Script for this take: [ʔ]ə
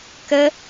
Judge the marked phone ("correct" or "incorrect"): incorrect